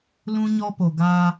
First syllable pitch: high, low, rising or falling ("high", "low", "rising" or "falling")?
high